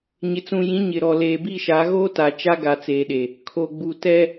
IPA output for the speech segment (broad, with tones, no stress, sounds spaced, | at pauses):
ɲ ɪ˨ t͡s ũ˨ j ĩ˨˦ ɲ ɪ˨ ɾ ɔ˨ l eː˨ b i˦˨ ʃ a˨˦ ɣ oː˦ t a˨ t͡ʃ a˦ ɡ a˨ t͡s eː˨ ɗ e˨ | kʰ o˨ ɡ͡b u˨ t ɛ˦